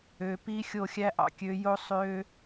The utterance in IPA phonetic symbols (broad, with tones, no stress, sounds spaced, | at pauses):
ø˨ p i˦ xʲ o˦˨ xʲ æ˦ ʔ ɑ̰˨ kʲ ø˨˦ j o˦ sˤ ø˦